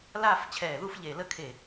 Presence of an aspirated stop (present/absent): present